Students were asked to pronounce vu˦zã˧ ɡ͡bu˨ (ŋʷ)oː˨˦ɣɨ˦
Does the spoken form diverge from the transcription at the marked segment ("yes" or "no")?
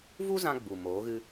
yes